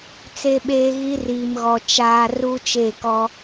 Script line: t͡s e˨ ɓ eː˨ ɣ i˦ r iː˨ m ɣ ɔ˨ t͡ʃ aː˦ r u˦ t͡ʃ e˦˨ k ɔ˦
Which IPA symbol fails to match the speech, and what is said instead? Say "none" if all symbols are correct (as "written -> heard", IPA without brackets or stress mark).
none